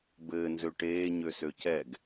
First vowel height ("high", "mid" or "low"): mid